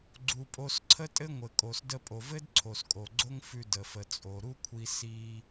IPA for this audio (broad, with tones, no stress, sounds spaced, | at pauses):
ɡ͡ǀ u˩ pʼ o˧ s ǀʰ ə˥ tʼ ɘ˥ ŋʷ ɘ˩ kʼ o˩ s d ə˧ pʼ o˩ v ɘ˥ d ǀʰ o˩ s kʼ o˩ ɡ͡ǀ o˥ ŋ f ʉ˧ d ə˩ f ə˩ t͡sʼ o˩ ɾ u˥ kʷʰ i˧ s i˧